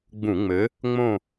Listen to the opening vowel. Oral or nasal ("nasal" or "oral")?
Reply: nasal